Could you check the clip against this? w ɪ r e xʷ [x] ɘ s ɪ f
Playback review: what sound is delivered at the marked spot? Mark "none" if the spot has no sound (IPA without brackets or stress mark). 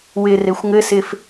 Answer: ŋ